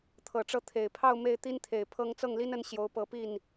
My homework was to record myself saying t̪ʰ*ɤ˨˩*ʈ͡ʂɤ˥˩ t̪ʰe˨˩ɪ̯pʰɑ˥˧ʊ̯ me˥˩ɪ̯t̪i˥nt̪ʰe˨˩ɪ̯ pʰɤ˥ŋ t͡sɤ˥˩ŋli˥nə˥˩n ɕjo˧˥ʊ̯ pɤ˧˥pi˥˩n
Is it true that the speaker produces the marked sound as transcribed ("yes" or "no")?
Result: yes